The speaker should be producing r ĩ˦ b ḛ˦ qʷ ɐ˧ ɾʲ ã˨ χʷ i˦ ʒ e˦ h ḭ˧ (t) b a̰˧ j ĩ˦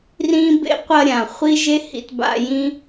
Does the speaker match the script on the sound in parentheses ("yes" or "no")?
yes